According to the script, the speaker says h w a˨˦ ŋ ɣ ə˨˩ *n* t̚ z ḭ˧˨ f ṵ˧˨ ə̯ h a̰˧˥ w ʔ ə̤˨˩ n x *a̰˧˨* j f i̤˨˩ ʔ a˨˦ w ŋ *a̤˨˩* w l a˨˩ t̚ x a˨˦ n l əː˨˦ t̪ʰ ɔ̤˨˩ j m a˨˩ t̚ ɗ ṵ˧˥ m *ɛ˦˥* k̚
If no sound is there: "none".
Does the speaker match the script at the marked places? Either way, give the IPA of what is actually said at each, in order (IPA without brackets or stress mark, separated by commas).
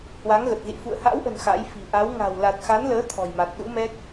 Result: none, a̰˧˥, a̤˨˩, ɛ˦˥